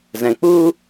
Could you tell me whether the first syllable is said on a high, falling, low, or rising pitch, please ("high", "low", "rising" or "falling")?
low